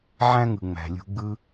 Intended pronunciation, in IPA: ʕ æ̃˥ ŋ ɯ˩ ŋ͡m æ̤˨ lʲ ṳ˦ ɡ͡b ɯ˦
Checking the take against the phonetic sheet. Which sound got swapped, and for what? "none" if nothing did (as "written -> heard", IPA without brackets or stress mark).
none